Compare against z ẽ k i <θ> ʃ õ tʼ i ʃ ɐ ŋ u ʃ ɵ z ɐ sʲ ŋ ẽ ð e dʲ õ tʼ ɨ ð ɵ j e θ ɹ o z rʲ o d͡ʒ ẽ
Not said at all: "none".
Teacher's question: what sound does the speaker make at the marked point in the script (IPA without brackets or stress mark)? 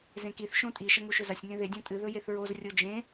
θ